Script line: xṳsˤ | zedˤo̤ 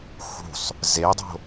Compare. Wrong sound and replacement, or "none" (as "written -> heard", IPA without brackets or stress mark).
none